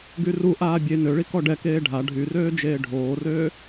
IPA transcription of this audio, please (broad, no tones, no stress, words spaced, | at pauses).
ɡyruʔaː bʲe nøɭi kɔɖɛkeː ɖʱa ɖʱyrøː d͡ʒeːɖʱoːrøː